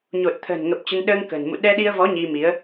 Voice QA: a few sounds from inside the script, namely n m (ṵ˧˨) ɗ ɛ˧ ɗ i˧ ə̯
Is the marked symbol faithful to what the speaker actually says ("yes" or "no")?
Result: yes